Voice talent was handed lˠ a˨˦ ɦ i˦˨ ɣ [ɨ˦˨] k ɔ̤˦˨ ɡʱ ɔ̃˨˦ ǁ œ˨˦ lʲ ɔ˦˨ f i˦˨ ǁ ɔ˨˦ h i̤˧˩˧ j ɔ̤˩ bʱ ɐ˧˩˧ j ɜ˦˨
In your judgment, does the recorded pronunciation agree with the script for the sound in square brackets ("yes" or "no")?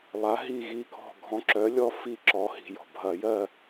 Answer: no